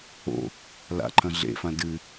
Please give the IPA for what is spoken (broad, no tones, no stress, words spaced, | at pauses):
o̰ | la̰ǃʰɐ̃ ɮḛfã dɨ